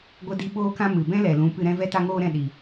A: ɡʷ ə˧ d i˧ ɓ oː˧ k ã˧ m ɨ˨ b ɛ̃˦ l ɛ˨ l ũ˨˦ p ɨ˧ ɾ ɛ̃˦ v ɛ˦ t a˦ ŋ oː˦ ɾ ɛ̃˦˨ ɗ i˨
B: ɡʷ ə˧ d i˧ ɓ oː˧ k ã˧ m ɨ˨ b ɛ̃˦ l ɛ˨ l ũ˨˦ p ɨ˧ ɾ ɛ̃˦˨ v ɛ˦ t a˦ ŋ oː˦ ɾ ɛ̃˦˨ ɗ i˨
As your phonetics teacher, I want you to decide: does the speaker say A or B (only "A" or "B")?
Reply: A